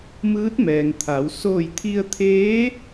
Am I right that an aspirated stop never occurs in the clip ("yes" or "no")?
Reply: no